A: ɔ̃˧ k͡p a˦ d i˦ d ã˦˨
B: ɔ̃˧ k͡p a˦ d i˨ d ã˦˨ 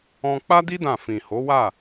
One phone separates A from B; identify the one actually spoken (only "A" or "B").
A